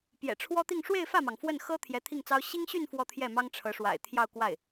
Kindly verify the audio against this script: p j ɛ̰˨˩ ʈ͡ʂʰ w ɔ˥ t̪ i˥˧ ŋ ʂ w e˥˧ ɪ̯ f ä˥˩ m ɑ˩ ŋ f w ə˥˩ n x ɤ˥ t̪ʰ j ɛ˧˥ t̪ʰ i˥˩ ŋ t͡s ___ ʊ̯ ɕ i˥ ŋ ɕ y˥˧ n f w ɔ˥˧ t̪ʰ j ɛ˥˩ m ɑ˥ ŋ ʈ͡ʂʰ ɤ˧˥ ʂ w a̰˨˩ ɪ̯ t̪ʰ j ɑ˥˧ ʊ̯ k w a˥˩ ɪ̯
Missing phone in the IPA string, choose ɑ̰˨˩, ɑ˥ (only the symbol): ɑ˥